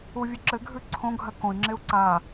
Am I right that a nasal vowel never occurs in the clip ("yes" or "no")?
no